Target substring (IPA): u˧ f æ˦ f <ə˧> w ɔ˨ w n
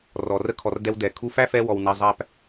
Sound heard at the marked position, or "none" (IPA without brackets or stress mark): ɛ˧